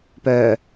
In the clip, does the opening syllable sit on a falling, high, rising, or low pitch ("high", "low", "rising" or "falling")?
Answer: low